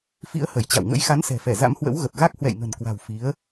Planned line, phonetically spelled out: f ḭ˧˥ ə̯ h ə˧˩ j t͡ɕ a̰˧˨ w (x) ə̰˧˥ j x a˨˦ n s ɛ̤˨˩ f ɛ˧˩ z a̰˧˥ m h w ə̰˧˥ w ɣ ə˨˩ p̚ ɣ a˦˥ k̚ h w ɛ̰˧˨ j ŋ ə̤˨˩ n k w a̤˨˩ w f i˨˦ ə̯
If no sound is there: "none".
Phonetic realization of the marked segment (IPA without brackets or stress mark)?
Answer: ŋ